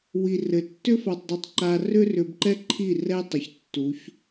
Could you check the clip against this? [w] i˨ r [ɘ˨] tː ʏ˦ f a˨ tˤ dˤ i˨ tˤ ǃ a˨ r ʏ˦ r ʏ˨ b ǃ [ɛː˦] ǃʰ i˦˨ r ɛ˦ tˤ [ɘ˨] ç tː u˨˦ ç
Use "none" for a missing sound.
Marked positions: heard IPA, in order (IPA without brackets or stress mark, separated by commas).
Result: w, ɘ˨, ɛ˦, ɘ˨